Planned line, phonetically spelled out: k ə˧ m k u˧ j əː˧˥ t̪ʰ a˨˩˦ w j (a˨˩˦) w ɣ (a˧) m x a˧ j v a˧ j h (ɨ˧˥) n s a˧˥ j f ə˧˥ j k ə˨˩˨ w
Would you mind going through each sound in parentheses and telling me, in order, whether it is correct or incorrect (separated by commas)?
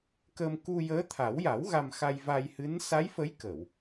correct, correct, correct